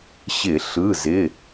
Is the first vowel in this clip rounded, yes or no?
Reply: no